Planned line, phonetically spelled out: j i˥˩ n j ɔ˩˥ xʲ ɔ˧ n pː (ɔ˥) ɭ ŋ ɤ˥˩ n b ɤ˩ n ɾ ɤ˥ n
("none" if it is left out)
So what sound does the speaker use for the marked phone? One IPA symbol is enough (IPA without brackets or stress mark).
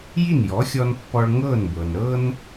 ɔ˧